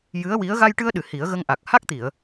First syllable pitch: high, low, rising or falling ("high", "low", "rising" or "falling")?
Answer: rising